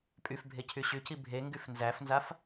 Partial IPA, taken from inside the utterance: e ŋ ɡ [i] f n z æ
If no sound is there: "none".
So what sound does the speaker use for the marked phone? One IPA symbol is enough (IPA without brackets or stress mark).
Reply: y